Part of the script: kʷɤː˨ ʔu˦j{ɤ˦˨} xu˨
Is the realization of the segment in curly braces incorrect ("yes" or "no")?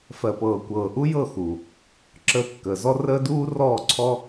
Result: no